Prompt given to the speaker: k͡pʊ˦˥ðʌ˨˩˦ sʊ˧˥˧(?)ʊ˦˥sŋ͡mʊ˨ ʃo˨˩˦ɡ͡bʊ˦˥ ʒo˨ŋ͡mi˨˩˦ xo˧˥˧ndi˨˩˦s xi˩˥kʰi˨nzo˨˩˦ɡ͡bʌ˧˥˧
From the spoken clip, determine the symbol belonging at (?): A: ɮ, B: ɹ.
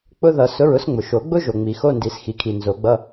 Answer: B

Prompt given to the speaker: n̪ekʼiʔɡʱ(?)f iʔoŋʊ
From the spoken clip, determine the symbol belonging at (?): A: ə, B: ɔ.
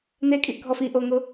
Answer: B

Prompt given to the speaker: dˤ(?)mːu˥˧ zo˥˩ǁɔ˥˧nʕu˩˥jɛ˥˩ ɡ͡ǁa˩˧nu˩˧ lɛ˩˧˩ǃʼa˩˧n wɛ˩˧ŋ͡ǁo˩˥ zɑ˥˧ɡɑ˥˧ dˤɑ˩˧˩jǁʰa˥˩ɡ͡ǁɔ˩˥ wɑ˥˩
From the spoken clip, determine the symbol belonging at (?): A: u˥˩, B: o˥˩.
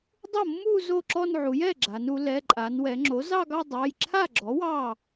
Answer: B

